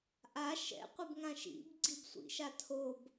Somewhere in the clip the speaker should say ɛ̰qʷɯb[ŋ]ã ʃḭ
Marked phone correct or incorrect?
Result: correct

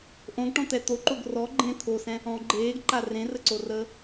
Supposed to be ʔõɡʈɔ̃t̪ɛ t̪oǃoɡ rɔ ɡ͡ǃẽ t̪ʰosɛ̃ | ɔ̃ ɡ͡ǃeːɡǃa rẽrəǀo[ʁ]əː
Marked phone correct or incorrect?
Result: incorrect: r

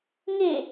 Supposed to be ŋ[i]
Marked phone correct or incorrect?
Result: correct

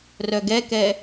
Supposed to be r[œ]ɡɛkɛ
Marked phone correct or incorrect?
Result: correct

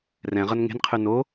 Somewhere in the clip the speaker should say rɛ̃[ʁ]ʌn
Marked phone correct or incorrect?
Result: correct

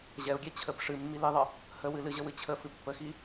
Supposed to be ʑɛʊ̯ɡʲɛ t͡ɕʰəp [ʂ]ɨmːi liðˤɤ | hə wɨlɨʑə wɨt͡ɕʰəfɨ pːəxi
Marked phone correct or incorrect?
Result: correct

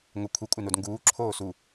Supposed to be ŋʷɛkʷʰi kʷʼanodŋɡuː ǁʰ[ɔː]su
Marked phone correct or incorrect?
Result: incorrect: oː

